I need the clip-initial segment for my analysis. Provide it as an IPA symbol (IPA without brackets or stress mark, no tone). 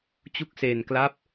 t͡ɕ